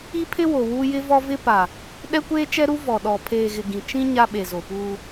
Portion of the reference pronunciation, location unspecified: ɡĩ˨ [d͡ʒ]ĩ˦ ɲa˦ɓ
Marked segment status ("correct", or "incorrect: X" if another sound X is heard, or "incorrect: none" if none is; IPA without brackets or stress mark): incorrect: t͡ʃ